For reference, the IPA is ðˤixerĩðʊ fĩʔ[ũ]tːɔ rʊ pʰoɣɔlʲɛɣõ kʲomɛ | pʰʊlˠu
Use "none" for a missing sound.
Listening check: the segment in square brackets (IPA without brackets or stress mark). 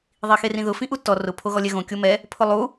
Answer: u